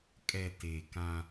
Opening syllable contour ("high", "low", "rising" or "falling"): low